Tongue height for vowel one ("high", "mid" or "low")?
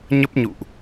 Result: mid